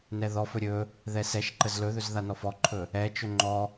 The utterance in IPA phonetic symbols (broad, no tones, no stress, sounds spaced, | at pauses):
n ɛ ð ɔ f ɵ ɾʲ ɵ | ð ɛ s ɛ ʃ ǃ ə z l ɵ ð ɵ z ð a n ɔ f ɔ ǃʰ ɵ | ɛ t͡ʃ ɵ ŋ͡ǃ ɔ